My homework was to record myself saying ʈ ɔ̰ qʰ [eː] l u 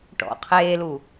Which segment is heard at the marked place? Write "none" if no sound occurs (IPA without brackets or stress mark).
eː